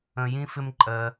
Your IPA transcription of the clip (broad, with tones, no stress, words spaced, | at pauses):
ə̃˧jĩ˦fɪ˦mǃʼɜ˧